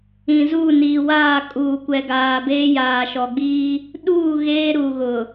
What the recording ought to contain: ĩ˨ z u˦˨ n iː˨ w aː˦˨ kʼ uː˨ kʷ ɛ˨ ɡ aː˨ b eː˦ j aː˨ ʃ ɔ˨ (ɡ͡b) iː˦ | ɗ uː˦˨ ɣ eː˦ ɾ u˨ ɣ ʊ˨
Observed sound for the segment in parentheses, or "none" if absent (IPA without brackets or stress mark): ɡ͡b